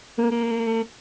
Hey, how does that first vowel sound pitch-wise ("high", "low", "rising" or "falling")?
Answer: high